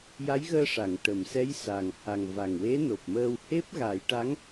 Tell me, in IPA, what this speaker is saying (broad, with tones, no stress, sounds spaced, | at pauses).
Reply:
j a˧˥ j ɣ əː˧ ʂ a˨˩˨ ŋ ʈ ə˨˩˨ m s ɛ˧˥ j s a˨˩ ŋ h a˨˩ ŋ v a˨˩ ŋ w e˧˥ n o˨˩ p̚ m əː˧ w h e˦˥ p̚ ɣ a˨˩˦ j ʈ a˧˥ ŋ